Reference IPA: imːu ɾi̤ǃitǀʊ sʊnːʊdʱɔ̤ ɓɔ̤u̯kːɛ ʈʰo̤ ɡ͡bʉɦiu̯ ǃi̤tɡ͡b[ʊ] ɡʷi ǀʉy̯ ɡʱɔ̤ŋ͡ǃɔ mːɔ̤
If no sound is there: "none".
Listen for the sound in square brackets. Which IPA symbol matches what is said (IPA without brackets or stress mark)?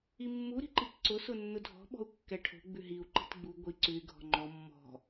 u